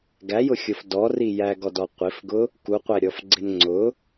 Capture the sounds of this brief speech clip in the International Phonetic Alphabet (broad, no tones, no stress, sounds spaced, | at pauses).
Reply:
ɡ æ j ʊ xʲ ʊ f d ɔ r i j æ ɡ ɔ d ɔ qʷ ɪ f ɡ ʊ | k u qʷ æ ɾʲ ɔ f ɡ͡ǀ ɪ n ŋ͡ǀ ʊ